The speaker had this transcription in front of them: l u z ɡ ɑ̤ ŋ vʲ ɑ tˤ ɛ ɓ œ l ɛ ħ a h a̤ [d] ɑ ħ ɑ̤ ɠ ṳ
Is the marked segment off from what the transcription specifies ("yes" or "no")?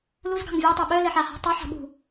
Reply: yes